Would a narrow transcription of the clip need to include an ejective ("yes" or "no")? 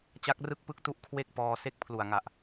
no